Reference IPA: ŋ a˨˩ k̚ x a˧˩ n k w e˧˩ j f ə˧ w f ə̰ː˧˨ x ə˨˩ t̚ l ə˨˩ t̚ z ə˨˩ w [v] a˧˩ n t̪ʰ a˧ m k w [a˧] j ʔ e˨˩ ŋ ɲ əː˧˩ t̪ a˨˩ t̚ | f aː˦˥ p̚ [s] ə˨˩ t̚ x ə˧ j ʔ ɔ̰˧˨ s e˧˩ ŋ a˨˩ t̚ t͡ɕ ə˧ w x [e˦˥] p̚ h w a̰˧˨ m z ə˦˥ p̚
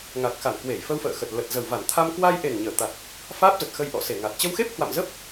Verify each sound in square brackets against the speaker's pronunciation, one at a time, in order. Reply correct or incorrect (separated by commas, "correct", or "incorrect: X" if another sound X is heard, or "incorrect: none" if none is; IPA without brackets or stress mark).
correct, correct, incorrect: z, correct